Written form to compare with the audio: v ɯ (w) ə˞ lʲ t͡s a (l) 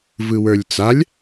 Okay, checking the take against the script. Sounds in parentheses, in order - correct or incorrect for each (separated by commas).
correct, incorrect